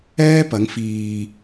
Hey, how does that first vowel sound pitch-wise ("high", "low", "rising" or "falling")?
high